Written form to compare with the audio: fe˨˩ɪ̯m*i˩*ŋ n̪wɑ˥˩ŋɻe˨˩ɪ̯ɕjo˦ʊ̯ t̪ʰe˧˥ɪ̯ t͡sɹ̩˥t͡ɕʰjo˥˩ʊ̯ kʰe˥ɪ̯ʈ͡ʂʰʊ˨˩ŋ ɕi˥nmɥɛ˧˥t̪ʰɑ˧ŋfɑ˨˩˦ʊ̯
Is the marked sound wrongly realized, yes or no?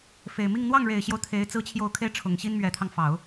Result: yes